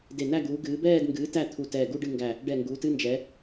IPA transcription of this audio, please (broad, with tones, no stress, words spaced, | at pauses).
de˧˩næ˥˧ ɡuː˩˧ɡɨː˩˧bɛː˥˧d ŋɡɨː˩˧tæ˧˩ t̪ʰu˧˩tɛː˧˩ɡu˥˧ ɖɨ˥˧ŋɡæ˧˩ | ɖɛ˧˩ŋɡuː˩˧tɨ˥˧nd͡ʒɛ˩˧